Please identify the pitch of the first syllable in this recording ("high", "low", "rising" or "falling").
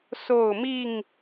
falling